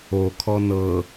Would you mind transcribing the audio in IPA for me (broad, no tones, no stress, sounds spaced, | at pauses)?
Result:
o kʰ ɔ n ɤ